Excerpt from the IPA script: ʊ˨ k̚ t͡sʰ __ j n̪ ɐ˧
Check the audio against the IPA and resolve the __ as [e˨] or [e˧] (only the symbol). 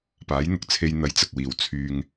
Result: e˧